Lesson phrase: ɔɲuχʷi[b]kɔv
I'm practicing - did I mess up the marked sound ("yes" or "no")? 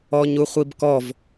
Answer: no